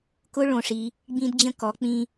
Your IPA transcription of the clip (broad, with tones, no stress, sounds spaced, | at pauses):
k ʊ˥ ɭ õ˧˩ ʂ i˧ | ɡ͡b ĩ˧ d d͡ʑ ə̃˧ k ɔ˩˧ k͡p ĩ˧